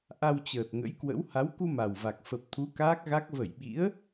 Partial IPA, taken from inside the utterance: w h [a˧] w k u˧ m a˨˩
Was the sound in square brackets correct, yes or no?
no